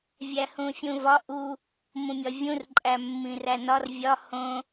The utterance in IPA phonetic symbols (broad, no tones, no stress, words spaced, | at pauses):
vʲæhũfʲũvɒ ʔu | mũmʲɒvʲũrǃʼæ mːĩrænɒr vʲɒ hõ